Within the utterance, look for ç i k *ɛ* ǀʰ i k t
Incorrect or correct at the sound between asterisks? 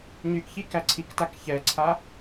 incorrect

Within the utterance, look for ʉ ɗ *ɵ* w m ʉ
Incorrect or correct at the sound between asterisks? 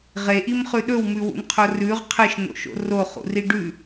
correct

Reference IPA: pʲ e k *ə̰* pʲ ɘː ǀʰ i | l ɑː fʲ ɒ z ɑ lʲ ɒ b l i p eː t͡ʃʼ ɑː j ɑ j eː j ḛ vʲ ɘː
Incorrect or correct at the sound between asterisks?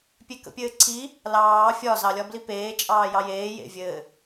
correct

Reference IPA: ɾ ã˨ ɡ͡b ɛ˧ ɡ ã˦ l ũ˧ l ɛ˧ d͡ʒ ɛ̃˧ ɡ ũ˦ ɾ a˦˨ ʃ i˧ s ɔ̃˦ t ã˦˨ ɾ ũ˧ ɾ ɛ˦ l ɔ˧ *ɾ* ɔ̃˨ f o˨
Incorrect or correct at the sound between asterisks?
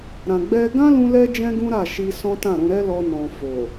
incorrect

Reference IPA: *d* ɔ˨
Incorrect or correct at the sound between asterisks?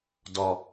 correct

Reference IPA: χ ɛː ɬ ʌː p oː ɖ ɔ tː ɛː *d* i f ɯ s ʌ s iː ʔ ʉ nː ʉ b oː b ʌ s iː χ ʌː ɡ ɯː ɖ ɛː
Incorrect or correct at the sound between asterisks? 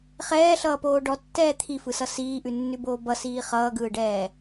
incorrect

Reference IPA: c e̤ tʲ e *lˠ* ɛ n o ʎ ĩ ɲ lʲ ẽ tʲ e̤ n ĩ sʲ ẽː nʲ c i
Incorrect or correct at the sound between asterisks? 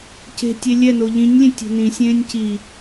incorrect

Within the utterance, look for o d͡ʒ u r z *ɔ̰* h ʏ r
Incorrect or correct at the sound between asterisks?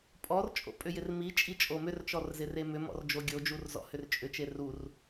correct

